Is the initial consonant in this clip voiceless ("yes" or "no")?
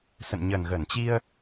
yes